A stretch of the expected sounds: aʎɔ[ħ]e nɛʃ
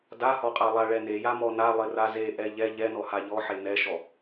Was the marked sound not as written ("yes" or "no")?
no